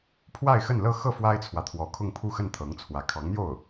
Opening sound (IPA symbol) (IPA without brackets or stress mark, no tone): pʰ